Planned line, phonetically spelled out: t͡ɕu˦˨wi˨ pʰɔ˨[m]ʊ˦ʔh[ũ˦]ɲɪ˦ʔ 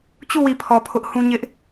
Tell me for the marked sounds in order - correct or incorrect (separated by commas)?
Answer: incorrect, correct